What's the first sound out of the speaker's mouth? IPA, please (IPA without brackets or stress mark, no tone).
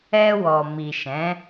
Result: ɛ